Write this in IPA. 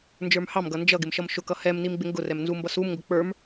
n d͡ʒ ə˞ m h ɑ m ɡ ʌ n d͡ʒ ʌ ɡ ɪ m ʃ ʌ m ʃ ʊ k ʌ h ɛ m n i m ɡ͡b ɪ ŋ ɡ ʊ r ɛ m n z u m b ʌ s u m ŋ ɡ ʊ k͡p ə˞ m

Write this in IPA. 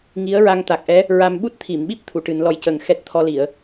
ŋ i˧˥ ə̯ ɹ a˧ ŋ t̪ a˨˩ k̚ ʔ ɛ˧˥ | ɹ a˧ m ɓ u˦˥ t̚ t̪ʰ i˨˩˨ m ɓ i˦˥ p̚ t̪ʰ u˨˩˨ ʈ ɨ˨˩˦ n l ɔ˧˥ j c ə˨˩ ŋ x ɛ˦˥ t̚ t̪ʰ ɔ˧ l i˨˩˨ ə̯

